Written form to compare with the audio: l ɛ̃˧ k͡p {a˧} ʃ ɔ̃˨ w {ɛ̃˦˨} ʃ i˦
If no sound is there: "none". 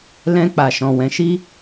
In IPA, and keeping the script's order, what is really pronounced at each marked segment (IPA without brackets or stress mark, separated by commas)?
a˨, ɛ̃˨˦